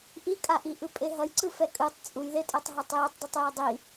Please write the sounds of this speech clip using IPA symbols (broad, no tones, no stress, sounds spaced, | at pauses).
ʔ i kʼ a ʔ i ʔ ɯ pʼ e ɦ ʌ j ǀ ɯ f ɛ kʼ ɯ tˤ t͡sʼ u j ð e tʼ ɛ tˤ ɦ e tˤ j ɛ tˤ dˤ ɯ tˤ j e dˤ i